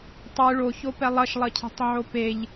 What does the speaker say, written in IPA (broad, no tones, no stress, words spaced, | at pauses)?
tˤɯ ɭoçopɛ lˠʌʃlˠʌcʰe̤tˤ ʕopeʎ